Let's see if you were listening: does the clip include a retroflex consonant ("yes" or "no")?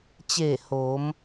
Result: no